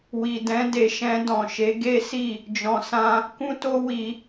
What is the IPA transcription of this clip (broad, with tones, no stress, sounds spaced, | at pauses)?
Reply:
w i˨ d ɛ̃˧ d e˨ ʃ ɛ̃˧ d ɔ̃˨ ʃ e˨˦ ɡ e˦ s i˦˨ | d͡ʒ ɔ̃˧ s ã˦ | k ũ˦ t o˦ w i˧